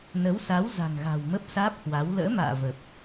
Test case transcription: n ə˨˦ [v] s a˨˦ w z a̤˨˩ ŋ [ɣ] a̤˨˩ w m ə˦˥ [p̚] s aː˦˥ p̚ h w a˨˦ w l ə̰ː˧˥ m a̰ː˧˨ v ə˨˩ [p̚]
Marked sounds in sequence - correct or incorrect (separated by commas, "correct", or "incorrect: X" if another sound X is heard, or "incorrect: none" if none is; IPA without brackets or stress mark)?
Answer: incorrect: w, correct, correct, correct